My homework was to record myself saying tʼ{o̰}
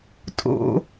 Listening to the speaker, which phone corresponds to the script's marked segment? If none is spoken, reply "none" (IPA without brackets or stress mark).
o̰